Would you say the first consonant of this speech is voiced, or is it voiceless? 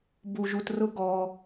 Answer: voiced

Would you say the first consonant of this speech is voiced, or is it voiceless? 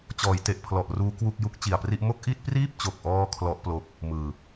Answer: voiceless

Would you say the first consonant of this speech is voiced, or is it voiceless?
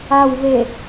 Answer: voiced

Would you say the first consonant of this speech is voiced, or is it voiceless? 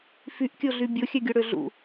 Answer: voiceless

